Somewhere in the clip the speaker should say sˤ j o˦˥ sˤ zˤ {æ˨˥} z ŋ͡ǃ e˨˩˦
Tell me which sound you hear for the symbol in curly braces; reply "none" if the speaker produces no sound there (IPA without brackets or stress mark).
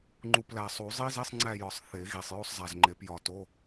æ˨˩